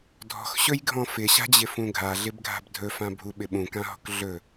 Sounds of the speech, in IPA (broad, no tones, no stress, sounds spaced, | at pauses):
dʱ ɔ̤ x ɕ ɵ j ɡʱ ɔ̃ f ɪ ɕ a̤ d͡ʑ ɪ f ũ ɡʱ a ɮ ɪ b ɡʱ a̤ b dʱ ɵ f ã bʱ u ɓ ɪ ɓ ũ k ã ɦ ɔ̤ k ɮ ɵ